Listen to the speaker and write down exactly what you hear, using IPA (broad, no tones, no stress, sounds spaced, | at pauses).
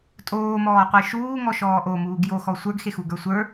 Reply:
tʼ oː m ɔː qʷ e ʃ uː ŋ ɔ ʃ ɔː ʔ o m uː ɡ j o x ɔ sʷ ə˞ ɡ x e x u ɡ ə˞ sʷ ə˞